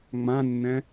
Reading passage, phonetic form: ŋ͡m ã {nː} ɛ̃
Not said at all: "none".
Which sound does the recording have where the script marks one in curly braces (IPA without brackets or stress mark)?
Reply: nː